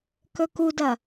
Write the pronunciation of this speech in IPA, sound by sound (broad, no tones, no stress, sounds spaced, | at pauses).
k ɵ k u d ɐ